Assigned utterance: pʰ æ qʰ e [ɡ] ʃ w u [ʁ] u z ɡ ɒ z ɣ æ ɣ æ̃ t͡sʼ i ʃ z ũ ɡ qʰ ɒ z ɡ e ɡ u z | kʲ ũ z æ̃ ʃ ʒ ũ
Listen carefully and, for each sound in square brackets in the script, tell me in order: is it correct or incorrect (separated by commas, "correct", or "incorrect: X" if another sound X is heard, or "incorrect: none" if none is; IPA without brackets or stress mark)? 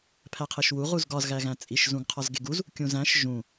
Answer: incorrect: none, correct